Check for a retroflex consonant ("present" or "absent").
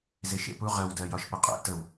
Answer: absent